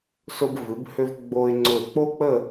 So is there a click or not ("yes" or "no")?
yes